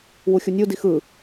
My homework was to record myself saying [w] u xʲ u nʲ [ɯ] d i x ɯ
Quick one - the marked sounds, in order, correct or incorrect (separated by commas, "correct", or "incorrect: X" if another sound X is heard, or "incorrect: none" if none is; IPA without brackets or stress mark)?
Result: correct, incorrect: u